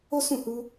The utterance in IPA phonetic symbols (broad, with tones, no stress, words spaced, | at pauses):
o˦sũ˦˨hu˧